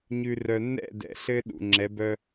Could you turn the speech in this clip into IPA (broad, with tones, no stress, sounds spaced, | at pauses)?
ɲ ʉ˨ r œ˨ nː ɛ̰˦˨ d ɛ̰˨ ɬ ɘ˦ ɗ ṵ˨ ŋ͡ǁ ɛ˨˦ b œ˦